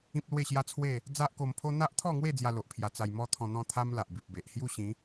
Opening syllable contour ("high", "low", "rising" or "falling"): high